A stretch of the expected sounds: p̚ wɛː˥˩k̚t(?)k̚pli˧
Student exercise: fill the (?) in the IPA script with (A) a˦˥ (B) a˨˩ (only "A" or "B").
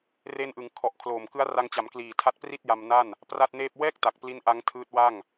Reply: B